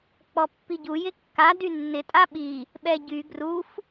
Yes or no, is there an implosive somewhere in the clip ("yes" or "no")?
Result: yes